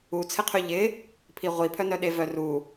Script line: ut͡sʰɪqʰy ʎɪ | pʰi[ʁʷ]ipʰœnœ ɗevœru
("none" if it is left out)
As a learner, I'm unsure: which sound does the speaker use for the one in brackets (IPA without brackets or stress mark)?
ʁʷ